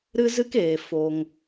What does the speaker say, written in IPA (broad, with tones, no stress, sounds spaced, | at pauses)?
ɾ ɨ˦ z ɨ˦ k eː˨ f o˧ ŋ